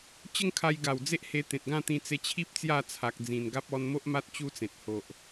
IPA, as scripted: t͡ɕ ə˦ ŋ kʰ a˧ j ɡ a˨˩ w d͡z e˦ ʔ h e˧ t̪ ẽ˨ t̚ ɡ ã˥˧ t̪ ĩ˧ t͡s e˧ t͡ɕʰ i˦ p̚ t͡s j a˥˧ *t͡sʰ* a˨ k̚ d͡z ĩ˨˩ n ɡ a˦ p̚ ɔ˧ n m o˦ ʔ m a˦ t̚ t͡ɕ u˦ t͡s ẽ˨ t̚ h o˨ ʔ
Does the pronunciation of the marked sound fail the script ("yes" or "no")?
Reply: no